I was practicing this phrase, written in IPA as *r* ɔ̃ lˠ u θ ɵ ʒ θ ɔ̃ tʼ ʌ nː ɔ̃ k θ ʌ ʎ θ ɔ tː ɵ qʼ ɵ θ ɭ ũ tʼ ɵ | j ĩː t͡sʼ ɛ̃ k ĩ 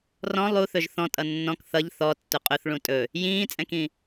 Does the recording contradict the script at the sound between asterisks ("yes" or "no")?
no